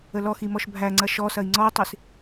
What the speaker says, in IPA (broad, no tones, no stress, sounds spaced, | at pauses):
ə l ɔ x i m ɔ ʃ bʱ æ ŋ͡ǀ ɐ ʃ ɔ s ɐ i̯ ŋ͡ǀ ɔ i̯ tˤ i s